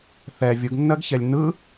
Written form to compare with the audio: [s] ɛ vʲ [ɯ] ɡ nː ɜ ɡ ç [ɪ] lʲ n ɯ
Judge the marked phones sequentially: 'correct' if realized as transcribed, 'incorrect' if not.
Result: incorrect, correct, incorrect

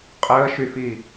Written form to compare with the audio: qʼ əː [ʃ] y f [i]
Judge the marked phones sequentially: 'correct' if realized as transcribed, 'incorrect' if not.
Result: correct, correct

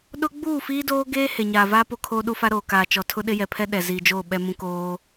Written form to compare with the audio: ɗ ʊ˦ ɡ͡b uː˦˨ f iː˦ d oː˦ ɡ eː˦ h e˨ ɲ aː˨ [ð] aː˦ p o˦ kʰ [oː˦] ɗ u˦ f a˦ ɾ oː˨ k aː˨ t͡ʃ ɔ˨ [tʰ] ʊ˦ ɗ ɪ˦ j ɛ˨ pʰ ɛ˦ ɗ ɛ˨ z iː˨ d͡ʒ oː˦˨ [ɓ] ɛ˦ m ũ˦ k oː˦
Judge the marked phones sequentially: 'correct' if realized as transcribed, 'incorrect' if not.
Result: incorrect, correct, correct, correct

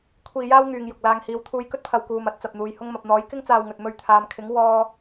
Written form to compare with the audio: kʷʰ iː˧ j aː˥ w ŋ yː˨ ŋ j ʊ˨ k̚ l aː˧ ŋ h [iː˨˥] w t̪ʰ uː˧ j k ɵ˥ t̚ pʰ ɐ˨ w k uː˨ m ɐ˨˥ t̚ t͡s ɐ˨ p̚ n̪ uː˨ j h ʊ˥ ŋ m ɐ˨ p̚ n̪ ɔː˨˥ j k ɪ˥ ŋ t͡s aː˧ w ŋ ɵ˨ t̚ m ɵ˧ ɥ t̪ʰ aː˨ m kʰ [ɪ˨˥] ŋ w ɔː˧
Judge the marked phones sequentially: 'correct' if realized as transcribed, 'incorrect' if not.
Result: incorrect, correct

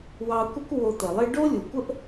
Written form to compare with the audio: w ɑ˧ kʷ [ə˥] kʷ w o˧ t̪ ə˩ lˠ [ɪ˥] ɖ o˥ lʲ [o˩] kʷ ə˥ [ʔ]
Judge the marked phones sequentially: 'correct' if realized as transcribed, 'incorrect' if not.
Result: correct, correct, incorrect, correct

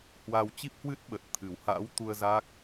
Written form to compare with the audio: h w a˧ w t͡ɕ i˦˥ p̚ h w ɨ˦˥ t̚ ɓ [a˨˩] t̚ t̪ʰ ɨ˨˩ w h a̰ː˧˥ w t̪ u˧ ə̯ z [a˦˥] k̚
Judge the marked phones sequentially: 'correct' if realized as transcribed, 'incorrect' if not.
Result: incorrect, correct

